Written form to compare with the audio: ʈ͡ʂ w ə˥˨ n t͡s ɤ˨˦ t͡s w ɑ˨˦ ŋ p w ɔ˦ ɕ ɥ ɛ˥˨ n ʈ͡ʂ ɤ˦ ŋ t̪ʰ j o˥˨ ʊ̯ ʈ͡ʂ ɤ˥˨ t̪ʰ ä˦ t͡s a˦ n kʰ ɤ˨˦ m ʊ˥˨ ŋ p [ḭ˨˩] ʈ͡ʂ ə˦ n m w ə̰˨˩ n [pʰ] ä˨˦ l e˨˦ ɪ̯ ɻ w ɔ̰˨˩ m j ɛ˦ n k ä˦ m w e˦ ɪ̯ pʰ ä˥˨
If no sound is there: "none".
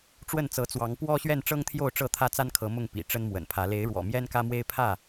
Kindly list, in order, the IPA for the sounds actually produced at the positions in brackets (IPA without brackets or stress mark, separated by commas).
ḭ˨˩, pʰ